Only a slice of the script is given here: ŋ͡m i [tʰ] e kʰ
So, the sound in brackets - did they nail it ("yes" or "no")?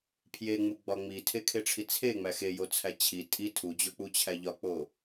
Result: yes